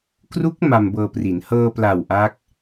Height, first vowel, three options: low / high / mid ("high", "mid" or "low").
high